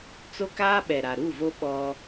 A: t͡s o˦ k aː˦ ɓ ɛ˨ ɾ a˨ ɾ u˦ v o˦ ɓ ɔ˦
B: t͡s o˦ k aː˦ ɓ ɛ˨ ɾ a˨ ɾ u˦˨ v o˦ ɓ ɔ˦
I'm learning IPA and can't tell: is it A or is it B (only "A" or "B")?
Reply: B